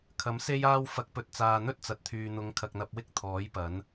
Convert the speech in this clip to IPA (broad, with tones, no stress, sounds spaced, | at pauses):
kʰ ɐ˨˥ m s e˥ j aː˥ w f ɐ˧ k̚ p ɵ˨ t̚ t͡s aː˨ n̪ ɵ˥ t̚ t͡s ɐ˨ t̚ t̪ʰ yː˨ n̪ ʊ˨˧ ŋ kʰ ɐ˨ k̚ n̪ ɐ˧ p̚ w ɪ˥ k̚ t̪ʰ ɔː˨˥ j p ɐ˨˥ n